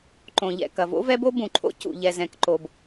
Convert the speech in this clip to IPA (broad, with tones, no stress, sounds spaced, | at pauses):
ǃ õ˩ ʎ ɛ̰˩ k ɐ˩ v o̰˥ v ɛ˥ b o˥ b ũ˩ ǃʰ o̰˥ c ṵ˩ ʎ ɛ˩ z ɛ̃˩ k ǃ o˩ b